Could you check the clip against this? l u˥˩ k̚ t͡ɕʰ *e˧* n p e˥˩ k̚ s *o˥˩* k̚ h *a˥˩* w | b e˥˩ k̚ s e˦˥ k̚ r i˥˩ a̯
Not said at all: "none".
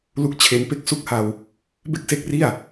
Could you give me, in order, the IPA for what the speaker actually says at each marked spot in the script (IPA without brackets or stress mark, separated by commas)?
e˧, u˥˩, a˧